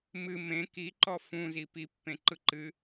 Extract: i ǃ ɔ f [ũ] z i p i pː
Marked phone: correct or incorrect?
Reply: correct